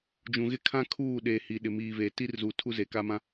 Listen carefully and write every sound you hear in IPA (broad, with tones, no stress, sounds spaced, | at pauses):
d͡ʒ ũ˨ ɣ ɪ˦ kʰ ã˦ kʰ uː˦˨ ɗ eː˨ h i˨ ɗ ɪ˨ m iː˨ v eː˨ t i˦ r z u˨ tʰ u˦ z e˨ k a˦ m ã˦